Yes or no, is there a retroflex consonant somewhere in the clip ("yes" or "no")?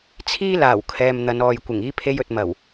no